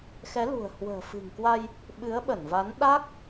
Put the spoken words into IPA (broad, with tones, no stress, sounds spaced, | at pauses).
x ɛ˨˦ l ṳ˨˩ ə̯ h w ə̤ː˨˩ f ɨ̤˨˩ ŋ k w a˧ j | ɓ ɨ˨˦ ə̯ ɓ ə˧˩ n v a˨˦ n ɗ a˦˥ k̚